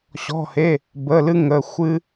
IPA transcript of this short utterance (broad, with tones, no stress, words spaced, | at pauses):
ɕɔ̤˩˧˩he˩˧˩ | bə˩˧˩ lɨ˥ŋə˩˧˩ xʷɨ˥